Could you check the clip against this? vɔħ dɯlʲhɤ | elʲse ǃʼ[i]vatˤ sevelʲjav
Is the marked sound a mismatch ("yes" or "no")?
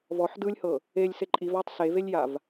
no